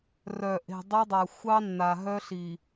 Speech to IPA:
rœ˨ ʔe̤˨dˤe˦ dˤa˨xʷɑ˦nːa˨ ɦœ˦ɬi˨

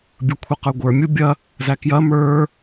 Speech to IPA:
bʲə˞kʷʰɐqə˞ɡʷə˞ mʲubʲɐ | zækjɐ mə˞

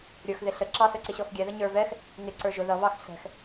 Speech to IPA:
ɾʲə˞xðɪ ɬə ǁɑsəǀɪ ɕɔxɡʲɛðə ɲə˞vɛx | ŋɪ ǀə˞ʒʊ ðʌβɑx ɬɛ̤x

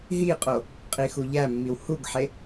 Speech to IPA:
ɦiqʼo | qʼixuʎæmːiw huɡħe

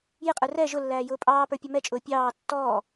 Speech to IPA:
jɪqʼə˞ rɛ ʒʊlːæː jʊːpʼɑːpə˞ pʲʌmɛt͡ʃʼʊː pʲɑː tːɔː

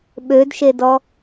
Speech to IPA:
ɓødʃedɔ

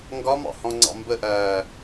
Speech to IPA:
ŋɡɒmɑ̰hɔ̃ŋ͡ǀɑ̰ mbəʔæː

